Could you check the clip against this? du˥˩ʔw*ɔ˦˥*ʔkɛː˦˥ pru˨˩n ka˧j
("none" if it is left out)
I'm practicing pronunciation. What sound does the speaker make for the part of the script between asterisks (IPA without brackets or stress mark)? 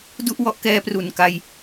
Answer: ɔ˦˥